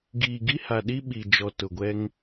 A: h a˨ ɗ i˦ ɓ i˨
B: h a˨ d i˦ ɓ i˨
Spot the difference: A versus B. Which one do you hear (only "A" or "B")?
A